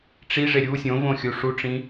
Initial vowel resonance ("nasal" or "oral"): oral